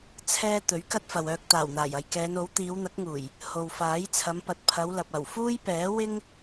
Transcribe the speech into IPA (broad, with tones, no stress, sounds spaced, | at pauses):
t͡sʰ ɛː˧ t̪ ɵ˨˥ ɥ k ɐ˥ t̚ f ɐ˨ w œː˧ k̚ t̪ aː˨˩ w n̪ aː˨˩ j ɐ˨ j k ɛː˨˧ n o˨˥ w t̪ iː˨˧ w n̪ ɐ˨˥ k̚ ŋ uː˨˩ j | h o˨ w f aː˨˥ j t͡sʰ ɐ˨˧ m p ɐ˨ t̚ pʰ ɐ˨˧ w l ɐ˨ p̚ ɐ˨˩ w f uː˥ j p ɛː˨˥ w ɪ˥ ŋ